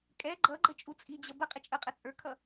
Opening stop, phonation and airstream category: ejective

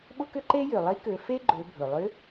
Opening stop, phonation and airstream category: implosive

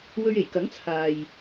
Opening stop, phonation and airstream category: plain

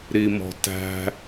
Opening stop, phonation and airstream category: plain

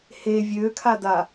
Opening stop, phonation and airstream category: aspirated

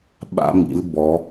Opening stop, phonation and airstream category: implosive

